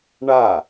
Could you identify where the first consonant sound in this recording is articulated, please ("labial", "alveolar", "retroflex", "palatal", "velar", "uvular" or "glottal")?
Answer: retroflex